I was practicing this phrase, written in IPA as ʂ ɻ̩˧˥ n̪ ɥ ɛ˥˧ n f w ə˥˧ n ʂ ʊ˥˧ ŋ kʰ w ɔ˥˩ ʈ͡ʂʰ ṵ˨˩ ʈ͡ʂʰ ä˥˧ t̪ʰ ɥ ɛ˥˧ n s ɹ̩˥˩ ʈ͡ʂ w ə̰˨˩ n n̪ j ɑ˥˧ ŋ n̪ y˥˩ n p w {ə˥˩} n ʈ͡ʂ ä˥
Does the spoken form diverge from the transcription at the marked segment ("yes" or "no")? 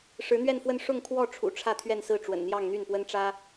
yes